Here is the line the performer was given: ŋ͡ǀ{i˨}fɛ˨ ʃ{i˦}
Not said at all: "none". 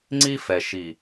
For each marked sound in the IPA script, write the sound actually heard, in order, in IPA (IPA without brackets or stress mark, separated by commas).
i˦, i˨